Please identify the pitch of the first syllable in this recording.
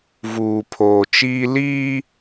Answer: low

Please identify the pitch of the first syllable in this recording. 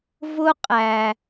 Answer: high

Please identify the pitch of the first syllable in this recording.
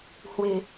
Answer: low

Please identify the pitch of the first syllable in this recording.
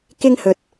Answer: high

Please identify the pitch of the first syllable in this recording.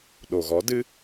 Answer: low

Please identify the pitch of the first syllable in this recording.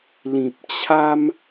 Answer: low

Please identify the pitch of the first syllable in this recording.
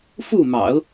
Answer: falling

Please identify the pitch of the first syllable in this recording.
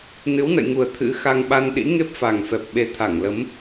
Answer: rising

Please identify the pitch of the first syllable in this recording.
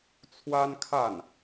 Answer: high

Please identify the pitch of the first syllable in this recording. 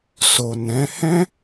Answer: low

